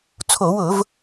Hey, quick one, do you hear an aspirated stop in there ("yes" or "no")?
yes